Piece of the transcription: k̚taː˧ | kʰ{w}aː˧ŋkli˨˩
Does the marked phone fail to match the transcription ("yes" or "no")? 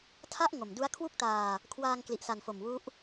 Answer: no